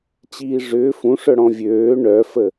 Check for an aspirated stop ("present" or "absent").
absent